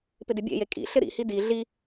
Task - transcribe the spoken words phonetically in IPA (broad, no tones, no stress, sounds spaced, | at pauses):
p ɪ d ɪ bʲ ḛ j e kʼ ḭ ɬ ɪ ɾ ḭ h i d i ɮ i